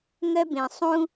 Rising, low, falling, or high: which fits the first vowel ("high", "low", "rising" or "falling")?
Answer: high